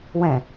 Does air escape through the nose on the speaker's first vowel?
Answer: yes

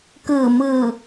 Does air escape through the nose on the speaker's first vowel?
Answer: no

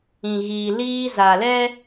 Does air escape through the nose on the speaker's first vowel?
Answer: yes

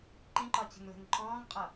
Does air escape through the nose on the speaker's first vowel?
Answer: yes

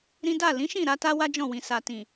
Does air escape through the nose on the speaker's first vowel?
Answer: yes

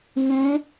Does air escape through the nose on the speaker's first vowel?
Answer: yes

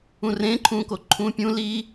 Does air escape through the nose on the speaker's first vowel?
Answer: yes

